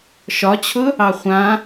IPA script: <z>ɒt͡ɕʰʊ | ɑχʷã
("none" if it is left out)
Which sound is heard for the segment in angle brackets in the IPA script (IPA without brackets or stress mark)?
ʃ